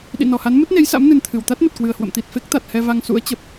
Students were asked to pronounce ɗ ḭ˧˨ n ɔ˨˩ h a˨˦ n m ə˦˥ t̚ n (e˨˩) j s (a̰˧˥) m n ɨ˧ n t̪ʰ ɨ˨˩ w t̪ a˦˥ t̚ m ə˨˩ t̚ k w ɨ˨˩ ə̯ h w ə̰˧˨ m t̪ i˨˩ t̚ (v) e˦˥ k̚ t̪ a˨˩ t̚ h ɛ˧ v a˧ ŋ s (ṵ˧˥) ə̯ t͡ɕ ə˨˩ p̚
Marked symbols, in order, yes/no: no, yes, no, yes

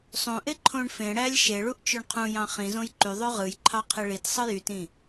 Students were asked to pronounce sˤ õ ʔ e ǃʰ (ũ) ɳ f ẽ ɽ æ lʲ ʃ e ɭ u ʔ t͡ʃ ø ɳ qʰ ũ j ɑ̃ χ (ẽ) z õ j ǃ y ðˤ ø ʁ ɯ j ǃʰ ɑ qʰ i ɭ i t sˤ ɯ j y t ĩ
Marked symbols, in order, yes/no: no, no

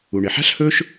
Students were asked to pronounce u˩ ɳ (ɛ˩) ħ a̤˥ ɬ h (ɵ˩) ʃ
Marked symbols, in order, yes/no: no, no

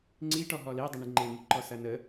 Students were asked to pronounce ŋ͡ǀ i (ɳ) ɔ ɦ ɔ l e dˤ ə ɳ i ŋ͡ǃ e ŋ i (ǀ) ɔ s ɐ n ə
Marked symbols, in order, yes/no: no, no

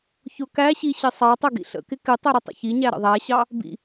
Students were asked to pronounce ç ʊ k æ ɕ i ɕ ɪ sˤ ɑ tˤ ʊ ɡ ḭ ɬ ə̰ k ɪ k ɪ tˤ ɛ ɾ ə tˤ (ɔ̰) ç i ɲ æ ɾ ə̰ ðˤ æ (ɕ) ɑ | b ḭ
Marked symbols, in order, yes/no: no, yes

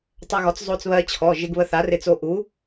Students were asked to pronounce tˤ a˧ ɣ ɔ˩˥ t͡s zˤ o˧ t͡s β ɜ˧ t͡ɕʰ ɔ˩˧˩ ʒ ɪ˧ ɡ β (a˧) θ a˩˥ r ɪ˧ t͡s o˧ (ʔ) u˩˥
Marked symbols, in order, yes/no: no, yes

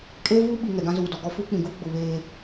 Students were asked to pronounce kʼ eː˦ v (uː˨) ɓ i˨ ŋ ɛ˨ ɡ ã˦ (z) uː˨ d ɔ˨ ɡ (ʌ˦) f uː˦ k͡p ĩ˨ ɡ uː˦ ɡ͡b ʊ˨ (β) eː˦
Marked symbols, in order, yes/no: no, yes, no, yes

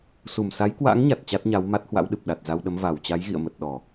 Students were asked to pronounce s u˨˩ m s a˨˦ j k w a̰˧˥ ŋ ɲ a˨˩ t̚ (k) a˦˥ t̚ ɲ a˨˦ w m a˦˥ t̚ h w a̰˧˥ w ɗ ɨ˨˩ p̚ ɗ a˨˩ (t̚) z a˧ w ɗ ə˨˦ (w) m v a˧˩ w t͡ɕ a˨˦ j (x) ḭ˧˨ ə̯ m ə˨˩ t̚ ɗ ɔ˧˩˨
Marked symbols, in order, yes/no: no, yes, no, no

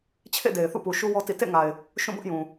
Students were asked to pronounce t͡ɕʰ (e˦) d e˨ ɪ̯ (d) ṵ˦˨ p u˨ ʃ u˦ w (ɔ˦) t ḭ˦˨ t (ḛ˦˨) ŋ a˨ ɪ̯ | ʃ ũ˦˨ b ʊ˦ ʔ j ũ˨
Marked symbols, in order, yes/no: no, no, yes, yes

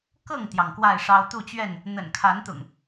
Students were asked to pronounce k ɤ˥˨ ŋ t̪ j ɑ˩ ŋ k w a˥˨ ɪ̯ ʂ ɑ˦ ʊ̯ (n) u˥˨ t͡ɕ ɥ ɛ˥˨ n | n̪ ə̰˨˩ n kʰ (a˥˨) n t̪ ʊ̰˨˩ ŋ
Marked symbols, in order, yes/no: no, no

